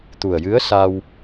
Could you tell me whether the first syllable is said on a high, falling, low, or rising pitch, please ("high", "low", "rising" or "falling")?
low